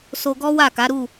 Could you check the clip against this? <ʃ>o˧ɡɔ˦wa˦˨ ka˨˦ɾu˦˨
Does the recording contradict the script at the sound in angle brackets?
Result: yes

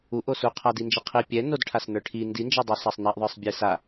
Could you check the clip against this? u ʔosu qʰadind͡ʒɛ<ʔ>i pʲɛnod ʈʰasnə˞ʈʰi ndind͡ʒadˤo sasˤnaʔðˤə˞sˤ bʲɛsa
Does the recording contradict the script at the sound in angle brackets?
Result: yes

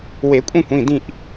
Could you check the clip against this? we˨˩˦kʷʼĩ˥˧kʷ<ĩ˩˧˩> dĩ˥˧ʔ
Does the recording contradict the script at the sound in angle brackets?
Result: no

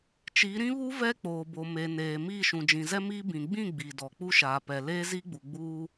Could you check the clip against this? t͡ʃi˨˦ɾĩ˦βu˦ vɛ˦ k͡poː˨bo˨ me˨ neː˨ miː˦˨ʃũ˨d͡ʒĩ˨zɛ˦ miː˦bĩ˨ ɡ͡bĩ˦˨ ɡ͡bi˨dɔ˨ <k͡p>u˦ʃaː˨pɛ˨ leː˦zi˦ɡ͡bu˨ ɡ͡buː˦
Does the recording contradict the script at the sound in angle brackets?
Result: no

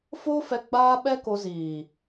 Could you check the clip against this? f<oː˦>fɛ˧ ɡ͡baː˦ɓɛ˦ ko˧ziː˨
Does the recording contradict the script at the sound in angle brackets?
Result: no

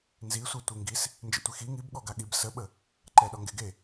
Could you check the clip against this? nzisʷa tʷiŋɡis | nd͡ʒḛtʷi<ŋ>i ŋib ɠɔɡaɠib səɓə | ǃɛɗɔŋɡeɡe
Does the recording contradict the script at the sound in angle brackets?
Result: yes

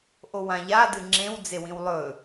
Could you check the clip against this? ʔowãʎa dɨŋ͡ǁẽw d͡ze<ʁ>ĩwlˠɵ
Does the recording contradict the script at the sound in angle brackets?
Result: yes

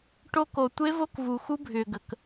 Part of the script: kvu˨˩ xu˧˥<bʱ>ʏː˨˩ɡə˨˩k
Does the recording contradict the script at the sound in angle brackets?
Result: no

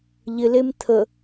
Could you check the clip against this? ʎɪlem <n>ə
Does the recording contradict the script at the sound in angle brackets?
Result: yes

